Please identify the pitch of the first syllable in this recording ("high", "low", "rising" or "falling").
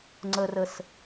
low